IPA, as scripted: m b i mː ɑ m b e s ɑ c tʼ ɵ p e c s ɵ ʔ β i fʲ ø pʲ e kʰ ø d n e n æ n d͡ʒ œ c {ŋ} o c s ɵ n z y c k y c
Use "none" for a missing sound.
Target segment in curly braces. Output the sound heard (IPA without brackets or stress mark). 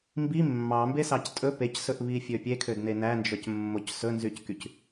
mː